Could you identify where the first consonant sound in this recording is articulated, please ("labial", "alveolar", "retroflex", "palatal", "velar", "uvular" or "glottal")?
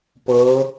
labial